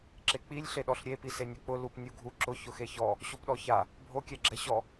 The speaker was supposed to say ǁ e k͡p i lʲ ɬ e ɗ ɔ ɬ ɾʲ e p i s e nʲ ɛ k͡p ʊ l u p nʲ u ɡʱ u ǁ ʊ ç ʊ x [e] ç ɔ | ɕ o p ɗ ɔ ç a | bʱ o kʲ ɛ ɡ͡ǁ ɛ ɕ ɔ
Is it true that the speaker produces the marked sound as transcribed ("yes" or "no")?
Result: yes